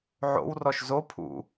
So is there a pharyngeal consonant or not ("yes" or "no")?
yes